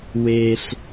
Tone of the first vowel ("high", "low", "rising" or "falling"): high